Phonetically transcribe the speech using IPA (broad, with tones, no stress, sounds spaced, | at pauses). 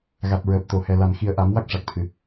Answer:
ɣ a˨˩ t̚ ɹ əː˨˩ p̚ t̪ o˨˩˨ h ɛ˨˩ l a˨˩˨ n x i˨˩ ə̯ ʔ a˨˩˦ m w a˦˥ k̚ ʂ a˨˩ k̚ t̪ʰ ɨ˨˩˨